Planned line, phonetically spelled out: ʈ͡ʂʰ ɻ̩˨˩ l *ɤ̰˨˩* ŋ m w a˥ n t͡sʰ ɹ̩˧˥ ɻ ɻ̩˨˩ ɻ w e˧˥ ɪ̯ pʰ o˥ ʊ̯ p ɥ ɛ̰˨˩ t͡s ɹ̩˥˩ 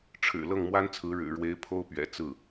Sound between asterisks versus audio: incorrect: ɤ˥˩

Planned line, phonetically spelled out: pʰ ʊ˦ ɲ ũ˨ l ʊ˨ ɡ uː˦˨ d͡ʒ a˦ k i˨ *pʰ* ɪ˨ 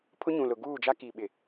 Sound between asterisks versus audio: incorrect: ɓ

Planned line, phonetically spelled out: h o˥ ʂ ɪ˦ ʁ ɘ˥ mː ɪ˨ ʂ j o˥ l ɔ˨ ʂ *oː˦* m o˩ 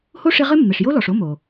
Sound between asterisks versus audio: incorrect: o˦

